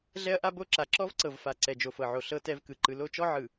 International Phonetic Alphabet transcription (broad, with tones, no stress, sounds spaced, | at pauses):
ɮ ɛ˦ ɐ̯ ʔ a˦ b o˦ ǁ a˨ ǁ ɔ˦ v ǀ ɤ˨ v f a˨ ǀ ɛ˨ d͡ʒ o˨ f ɤ˨ ʕ o˨ ɬ ɤ˦ t ɛ˦ v k ɯ˨ ǃ ɯ˨ l o˦˨ t͡ʃ ɔ˦ ʕ ɯ˨